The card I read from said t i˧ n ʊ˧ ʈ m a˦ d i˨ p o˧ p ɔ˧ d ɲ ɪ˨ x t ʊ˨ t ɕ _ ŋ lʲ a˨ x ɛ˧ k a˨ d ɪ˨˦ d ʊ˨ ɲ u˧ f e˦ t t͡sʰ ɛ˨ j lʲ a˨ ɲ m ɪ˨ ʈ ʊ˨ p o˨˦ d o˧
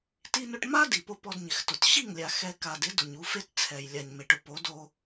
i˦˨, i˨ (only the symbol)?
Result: i˦˨